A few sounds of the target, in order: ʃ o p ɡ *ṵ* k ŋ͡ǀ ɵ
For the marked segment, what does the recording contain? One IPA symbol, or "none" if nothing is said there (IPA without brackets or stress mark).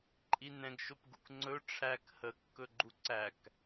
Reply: ṵ